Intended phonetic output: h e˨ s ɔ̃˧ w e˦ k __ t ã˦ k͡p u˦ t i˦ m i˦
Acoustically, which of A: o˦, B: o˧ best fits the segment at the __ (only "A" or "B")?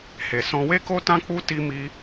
A